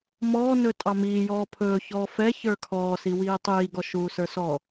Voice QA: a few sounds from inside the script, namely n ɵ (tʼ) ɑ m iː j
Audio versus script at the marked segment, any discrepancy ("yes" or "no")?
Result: no